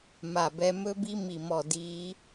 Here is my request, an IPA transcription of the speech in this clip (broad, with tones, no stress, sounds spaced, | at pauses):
m a˦˨ b ɛ˦˥ m ɵ˦˥ b i˦˥ m i˦˨ m ɔ˦˨ d iː˦˥